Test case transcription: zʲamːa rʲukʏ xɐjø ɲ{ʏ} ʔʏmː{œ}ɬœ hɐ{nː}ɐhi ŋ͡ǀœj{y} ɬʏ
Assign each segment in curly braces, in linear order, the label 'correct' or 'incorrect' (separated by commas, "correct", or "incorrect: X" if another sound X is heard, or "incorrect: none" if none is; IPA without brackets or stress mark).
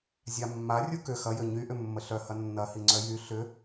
incorrect: y, incorrect: ə, correct, correct